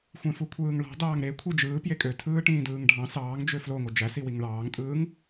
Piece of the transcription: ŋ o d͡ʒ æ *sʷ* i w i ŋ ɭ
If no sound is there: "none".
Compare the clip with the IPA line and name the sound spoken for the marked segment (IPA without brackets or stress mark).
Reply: s